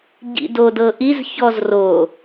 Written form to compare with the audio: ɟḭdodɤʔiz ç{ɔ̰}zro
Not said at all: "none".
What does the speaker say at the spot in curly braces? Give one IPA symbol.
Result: ɔ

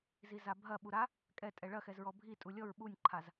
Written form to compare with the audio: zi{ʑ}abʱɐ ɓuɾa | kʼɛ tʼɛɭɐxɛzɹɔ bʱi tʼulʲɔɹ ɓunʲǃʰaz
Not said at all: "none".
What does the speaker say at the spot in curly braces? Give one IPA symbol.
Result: z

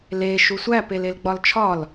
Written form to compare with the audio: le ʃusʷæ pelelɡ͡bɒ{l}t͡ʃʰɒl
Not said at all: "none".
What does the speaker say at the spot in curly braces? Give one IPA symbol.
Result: l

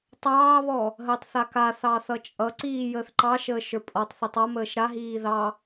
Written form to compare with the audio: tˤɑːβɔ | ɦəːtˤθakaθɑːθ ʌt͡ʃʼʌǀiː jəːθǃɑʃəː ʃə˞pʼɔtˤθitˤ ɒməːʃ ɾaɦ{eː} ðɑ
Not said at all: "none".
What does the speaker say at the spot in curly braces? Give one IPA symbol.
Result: iː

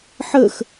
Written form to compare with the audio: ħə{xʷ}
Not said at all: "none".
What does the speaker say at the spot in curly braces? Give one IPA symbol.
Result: x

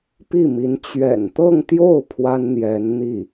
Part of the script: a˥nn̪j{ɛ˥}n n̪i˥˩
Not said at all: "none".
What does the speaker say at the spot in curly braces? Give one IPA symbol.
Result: ɛ˧˥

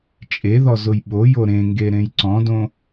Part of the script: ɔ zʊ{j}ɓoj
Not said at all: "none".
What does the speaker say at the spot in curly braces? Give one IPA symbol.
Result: j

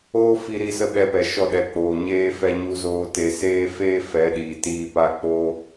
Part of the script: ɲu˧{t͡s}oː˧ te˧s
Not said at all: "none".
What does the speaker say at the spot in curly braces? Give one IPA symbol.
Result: z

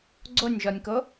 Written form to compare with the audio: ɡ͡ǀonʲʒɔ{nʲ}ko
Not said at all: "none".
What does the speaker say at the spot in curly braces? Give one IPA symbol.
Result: nʲ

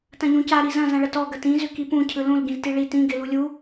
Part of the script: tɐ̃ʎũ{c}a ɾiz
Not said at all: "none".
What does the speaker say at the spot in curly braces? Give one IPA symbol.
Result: c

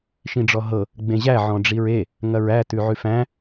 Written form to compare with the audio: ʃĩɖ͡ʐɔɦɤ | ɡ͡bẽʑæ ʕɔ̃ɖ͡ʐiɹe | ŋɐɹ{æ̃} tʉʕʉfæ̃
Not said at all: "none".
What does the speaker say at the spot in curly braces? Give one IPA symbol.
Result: æ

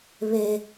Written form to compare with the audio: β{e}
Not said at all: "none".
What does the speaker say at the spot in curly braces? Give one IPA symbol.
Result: e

